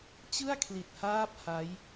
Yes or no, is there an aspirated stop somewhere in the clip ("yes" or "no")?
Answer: yes